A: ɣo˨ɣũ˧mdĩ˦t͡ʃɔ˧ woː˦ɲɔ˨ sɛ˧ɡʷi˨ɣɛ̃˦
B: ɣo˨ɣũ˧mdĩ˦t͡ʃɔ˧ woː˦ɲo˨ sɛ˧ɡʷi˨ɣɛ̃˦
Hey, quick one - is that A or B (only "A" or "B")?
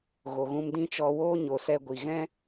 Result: B